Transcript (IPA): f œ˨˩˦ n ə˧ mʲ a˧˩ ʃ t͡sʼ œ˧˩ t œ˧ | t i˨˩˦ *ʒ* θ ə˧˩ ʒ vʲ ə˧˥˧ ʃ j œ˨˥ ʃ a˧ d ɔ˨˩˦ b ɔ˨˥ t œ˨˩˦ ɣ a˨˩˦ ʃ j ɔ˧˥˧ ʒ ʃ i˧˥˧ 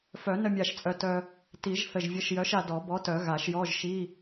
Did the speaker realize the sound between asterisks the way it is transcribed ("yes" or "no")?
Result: yes